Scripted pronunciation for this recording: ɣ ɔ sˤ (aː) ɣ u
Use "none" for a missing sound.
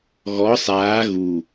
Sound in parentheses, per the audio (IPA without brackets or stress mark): aː